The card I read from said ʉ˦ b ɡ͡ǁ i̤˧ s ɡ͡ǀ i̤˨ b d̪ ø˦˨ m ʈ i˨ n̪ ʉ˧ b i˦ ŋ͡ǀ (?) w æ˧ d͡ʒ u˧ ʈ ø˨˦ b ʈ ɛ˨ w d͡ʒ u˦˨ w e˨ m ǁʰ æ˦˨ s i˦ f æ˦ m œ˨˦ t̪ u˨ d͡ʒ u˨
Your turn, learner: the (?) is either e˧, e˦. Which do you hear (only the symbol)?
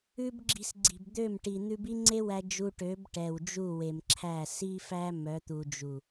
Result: e˦